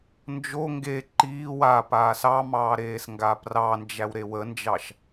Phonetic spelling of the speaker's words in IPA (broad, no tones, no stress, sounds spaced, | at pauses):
n d͡ʒ o ŋ ɡ e ǃ iː w a p aː s ɑ m ɑː ɾ eː s ŋ ɡ a p r ɑ n d͡ʒ æ w ɾ e w ə n d͡ʒ ɑ ʃ